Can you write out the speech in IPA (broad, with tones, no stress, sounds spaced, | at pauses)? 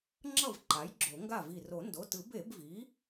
ŋ͡ǁ ʌ˥˩ v ǃ a˩˥ j ɡ͡ǁ o˨˩˦ ŋ ɡ a˥˩ v i˧˩ r o˨˩˦ n d o˩˧˩ t ɯ˨˩˦ b e˨˩˦ b v i˩˥